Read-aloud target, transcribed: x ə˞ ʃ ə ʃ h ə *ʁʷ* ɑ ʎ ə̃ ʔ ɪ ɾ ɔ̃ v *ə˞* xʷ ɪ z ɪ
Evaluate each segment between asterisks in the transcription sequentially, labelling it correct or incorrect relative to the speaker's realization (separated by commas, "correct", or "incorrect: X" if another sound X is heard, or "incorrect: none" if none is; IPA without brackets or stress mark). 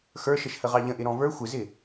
incorrect: ʁ, correct